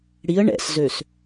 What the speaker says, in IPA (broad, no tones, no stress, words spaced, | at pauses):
ɽiə̯ ɳɛ̰szøs